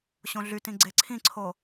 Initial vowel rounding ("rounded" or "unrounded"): rounded